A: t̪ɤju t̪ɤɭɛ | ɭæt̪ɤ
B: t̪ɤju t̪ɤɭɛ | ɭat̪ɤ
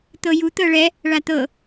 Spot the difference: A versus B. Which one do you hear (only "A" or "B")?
B